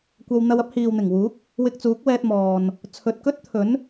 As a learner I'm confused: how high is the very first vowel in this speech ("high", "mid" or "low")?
low